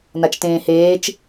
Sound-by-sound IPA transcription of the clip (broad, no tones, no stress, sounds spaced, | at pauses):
n a t͡ʃ t ẽː h eː t͡ʃ